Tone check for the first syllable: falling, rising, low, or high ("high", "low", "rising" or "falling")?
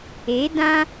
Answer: rising